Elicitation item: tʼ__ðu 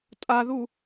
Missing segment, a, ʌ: a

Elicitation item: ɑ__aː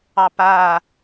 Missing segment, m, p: p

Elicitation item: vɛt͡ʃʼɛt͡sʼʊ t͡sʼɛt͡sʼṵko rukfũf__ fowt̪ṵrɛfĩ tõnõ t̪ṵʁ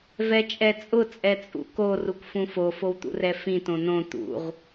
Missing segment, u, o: o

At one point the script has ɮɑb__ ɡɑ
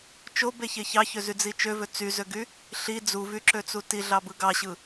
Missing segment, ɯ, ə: ɯ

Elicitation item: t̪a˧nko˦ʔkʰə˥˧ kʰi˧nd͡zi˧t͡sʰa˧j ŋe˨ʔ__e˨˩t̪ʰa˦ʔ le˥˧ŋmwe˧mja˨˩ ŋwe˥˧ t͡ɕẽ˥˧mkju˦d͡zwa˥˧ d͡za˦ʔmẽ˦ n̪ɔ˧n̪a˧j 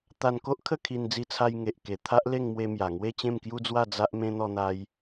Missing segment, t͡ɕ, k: k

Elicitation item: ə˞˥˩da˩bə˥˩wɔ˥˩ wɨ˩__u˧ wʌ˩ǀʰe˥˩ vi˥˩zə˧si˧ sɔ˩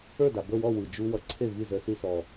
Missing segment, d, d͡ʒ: d͡ʒ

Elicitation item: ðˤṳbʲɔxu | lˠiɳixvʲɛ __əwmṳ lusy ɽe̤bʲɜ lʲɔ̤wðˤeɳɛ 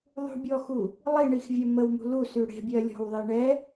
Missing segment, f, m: m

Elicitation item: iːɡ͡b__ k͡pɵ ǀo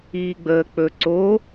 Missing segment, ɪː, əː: əː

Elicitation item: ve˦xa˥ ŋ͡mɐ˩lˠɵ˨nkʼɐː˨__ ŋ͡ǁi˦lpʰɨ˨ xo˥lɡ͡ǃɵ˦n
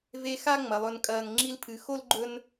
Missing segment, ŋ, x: ŋ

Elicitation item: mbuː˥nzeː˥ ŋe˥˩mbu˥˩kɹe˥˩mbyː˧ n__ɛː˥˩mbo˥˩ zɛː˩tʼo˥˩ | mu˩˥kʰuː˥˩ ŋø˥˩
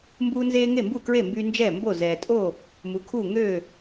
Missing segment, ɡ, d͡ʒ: d͡ʒ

